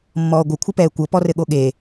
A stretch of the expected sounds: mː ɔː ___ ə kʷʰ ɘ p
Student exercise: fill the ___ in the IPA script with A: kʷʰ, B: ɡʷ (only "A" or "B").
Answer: B